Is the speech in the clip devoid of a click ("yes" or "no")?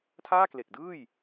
yes